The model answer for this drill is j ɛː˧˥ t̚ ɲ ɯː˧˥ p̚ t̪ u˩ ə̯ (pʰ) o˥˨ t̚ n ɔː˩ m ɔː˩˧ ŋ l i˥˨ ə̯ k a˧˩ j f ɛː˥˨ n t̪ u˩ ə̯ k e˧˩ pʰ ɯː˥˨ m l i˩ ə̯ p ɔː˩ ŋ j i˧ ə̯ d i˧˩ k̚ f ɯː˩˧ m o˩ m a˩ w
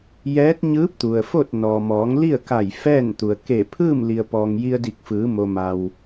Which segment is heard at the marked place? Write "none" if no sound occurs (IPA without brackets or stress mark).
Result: f